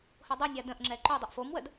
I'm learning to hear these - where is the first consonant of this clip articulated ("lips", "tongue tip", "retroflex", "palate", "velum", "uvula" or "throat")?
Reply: throat